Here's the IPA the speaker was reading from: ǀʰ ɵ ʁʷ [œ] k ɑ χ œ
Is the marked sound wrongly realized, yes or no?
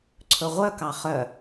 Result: no